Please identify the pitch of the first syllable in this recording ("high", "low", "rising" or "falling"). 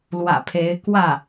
low